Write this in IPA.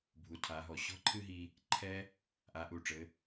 bʱu˩˧tʰa˩˧ɦɔ˩ ɕɔ̤˥ǃʰɨ˥ɦi˧ | ǃʰɛ˧ | ʔa˩˧ʔu˩ʈ͡ʂɘ˩˧

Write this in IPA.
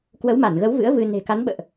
kwə˨˦wma˧˩nɣə˨˦wvɨ̰˧˥ə̯ vɨ˧ ne̤˨˩ka˨˦nɓə̰ː˧˨ʔ

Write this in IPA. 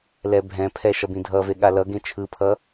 lɛbʱɛ̃pʰɛ ʃʌbĩdʱʌve ɠalʌɡẽ t͡ʃʰɯpʰʌ

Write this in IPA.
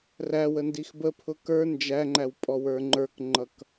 ræwəndix bəpʰʊ kə˞ nd͡ʒæŋ͡ǃæwpʼɔwə˞ ŋ͡ǃə˞kŋ͡ǃʌk

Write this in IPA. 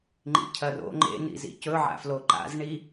ŋ͡ǃḭcʰɐro̰ ŋ͡ǃḛ nḭzḭcɵ ʕa̰floǃa̰z ɳi

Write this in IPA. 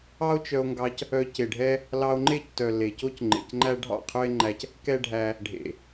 ɑ˦o̯t͡ʃœ˧o̯ŋɡɑ˧c | œ˧ce˨ɖʱɛ˦ | lɑ˧o̯ŋ͡ǃe˦˨ctœ˨ le˨ co˦cŋ͡ǃḛ˨cŋ͡ǃæ˦ ɖʱɑ̰˦˨qʰɵ˦e̯ŋ͡ǃæ˧c | kɛ˦ɖʱæ˧ | ɖʱḛ˨

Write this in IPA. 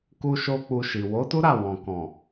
ku˦ʃo˦ k͡pu˧ʃi˨ wo˨˦tu˦ɾa˦˨ wɔ̃˨ kɔ̃˨

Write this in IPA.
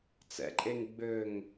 t͡sɛ̰ǃʼeŋ ɡ͡bøŋ

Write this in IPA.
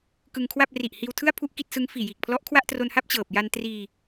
kɯ˧ŋkʰwa˥˩p̚ ri˨˩ʔhiː˧wtʰɯ˥˩a̯ pʰu˥˩ʔki˥˩t̚sɯ˦˥ŋ fiː˨˩jiː˨˩k̚ pʰlɔ˦˥ʔkʰwa˥˩ʔtro˧nha˥˩p̚ t͡ɕɤː˨˩p̚ ja˧ntriː˧

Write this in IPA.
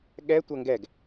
ɠɛtʷɐ ŋɡɛɡ

